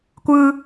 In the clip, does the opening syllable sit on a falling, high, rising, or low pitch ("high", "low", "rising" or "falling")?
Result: high